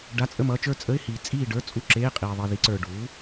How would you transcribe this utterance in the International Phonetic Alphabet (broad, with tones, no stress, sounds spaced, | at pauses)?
ɖ a˧˥˧ t͡sʼ ə˥˨ m ʌ˧˥˧ t͡ʃ ə˞˥˨ t͡sʼ ə˧˥˧ ɪ̯ h iː˨ t͡sʼ iː˥˨ ɖ ə˞˧˥˧ t͡sʼ u˥˨ ǁ eː˧˥˧ qʼ iː˨ ðˤ i˨ ð i˩˥ ǀ ə˞˨ ɖ uː˩˥